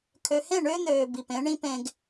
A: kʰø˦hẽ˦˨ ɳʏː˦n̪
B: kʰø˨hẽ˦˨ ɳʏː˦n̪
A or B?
B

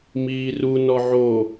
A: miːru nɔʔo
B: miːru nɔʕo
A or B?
B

